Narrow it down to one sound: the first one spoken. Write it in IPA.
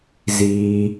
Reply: z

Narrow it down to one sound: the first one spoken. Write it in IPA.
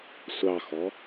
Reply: sʷ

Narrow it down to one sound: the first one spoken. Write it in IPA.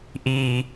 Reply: ʔ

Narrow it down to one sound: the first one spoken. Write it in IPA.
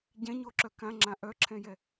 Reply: ɟ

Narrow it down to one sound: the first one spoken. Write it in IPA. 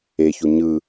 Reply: e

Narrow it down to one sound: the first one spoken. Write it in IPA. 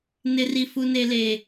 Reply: n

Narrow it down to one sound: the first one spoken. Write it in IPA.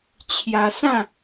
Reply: t͡ɕʰ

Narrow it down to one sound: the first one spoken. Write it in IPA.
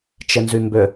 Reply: t͡ʃ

